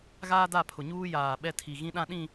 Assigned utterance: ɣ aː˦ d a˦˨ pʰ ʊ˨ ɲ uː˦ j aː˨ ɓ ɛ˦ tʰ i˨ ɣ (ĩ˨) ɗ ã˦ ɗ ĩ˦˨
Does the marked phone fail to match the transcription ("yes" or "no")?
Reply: yes